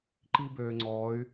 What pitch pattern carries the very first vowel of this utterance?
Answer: high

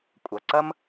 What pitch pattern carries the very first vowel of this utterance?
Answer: low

